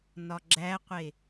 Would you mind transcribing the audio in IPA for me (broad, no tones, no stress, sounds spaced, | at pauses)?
n ɒ ɡ͡ǁ æ qʷ e